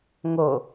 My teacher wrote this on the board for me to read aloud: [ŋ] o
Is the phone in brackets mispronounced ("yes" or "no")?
no